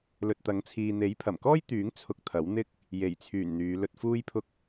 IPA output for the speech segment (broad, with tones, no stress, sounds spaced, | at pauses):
l ɵ˨ t̚ t̪ ɐ˨˥ ŋ t͡sʰ iː˨ n̪ e˨˥ j pʰ ɐ˨˩ m k ɔː˥ j t̪ yː˨˥ ŋ t͡sʰ ʊ˧ k̚ t̪ʰ ɐ˨˥ w n̪ ɪ˥ k̚ | j e˨˩ j t͡sʰ yː˨˩ n n̪ yː˨˧ l ɵ˧ t̚ f uː˥ j pʰ ʊ˥ k̚